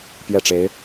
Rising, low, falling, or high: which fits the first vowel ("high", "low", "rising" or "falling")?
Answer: falling